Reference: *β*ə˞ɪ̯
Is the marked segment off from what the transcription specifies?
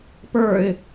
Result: yes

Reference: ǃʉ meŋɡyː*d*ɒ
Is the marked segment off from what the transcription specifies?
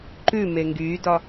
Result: no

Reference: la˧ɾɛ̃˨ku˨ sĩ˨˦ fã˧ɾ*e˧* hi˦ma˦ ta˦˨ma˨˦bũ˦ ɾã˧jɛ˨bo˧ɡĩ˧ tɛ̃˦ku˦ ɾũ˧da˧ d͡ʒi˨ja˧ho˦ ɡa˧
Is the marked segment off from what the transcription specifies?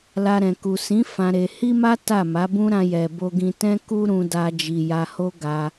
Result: no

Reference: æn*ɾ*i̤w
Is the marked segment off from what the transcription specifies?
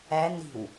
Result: no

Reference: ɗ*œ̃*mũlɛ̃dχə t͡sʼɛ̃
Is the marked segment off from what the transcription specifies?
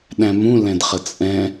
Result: yes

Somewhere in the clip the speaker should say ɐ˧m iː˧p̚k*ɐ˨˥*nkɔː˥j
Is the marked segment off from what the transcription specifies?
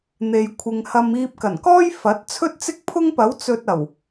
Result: yes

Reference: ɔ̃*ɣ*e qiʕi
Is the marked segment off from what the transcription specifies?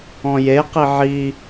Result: yes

